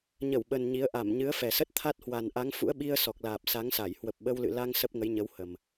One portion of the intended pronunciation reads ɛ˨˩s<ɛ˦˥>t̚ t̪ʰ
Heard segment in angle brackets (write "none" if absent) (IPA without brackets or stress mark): ə˦˥